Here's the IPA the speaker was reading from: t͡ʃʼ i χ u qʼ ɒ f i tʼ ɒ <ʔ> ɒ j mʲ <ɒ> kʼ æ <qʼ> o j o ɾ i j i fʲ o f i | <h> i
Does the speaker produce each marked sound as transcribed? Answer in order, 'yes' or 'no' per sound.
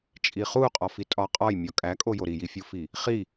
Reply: no, yes, no, no

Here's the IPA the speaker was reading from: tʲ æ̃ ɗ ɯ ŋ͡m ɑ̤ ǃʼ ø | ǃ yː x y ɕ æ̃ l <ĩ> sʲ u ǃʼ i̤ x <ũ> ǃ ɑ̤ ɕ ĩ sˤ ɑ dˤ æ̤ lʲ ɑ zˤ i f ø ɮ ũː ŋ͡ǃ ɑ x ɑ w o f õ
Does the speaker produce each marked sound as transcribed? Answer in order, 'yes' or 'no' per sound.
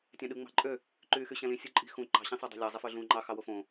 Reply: yes, yes

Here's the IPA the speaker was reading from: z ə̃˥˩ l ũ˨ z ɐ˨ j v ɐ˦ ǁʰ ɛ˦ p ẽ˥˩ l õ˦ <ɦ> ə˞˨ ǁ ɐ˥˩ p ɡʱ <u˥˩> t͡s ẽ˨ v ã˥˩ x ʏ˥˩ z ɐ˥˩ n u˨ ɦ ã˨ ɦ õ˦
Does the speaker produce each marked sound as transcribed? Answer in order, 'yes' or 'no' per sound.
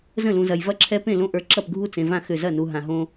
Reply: no, yes

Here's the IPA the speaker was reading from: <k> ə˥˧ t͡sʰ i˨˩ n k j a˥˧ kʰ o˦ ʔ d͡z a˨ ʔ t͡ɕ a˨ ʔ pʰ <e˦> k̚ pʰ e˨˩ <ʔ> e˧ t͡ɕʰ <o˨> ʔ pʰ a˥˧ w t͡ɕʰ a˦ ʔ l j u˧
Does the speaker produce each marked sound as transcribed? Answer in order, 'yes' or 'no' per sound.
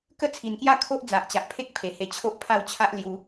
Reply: yes, yes, no, no

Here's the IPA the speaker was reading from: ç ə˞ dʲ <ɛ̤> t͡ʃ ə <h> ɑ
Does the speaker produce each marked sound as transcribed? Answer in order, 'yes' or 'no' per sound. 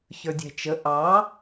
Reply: yes, no

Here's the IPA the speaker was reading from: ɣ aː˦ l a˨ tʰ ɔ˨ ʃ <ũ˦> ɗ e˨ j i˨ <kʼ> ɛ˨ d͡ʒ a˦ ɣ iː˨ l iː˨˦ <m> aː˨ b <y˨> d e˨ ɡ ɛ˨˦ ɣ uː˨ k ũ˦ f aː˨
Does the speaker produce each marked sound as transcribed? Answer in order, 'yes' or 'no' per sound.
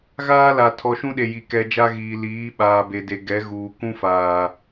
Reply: yes, no, no, no

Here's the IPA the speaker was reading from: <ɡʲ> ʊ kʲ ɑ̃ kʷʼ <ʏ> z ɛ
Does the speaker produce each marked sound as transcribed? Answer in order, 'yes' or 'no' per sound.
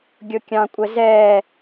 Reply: yes, no

